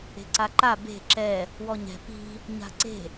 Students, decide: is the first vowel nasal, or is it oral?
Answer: oral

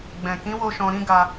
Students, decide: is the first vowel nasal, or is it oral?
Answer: nasal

